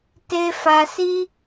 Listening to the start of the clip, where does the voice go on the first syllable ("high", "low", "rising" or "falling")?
high